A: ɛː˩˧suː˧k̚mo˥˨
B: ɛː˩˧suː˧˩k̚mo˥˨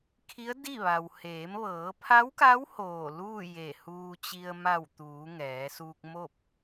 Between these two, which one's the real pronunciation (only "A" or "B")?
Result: A